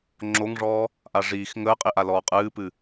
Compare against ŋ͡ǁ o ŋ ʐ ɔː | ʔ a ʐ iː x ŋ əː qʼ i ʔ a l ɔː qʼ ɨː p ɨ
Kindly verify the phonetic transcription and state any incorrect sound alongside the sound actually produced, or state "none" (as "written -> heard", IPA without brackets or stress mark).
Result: none